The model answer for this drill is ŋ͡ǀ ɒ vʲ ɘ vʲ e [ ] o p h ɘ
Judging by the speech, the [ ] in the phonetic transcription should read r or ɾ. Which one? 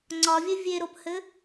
ɾ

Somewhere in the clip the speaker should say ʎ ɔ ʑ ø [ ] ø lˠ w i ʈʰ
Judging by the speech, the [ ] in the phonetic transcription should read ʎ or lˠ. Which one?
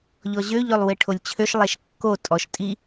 ʎ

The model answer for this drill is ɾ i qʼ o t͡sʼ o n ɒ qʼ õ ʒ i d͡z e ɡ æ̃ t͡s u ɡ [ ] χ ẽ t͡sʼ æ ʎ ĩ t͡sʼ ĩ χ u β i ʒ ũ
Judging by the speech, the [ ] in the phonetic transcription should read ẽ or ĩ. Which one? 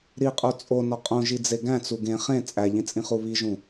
ẽ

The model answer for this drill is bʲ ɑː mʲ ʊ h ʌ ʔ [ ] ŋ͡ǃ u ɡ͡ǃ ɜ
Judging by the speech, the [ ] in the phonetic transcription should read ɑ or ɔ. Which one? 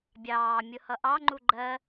ɑ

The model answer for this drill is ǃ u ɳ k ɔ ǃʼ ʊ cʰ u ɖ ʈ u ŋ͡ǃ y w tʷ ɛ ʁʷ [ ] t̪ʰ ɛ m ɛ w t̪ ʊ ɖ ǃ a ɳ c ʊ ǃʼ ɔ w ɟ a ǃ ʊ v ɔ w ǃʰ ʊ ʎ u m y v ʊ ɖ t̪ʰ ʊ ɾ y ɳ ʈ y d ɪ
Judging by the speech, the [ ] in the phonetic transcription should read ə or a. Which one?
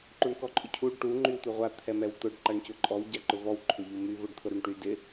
a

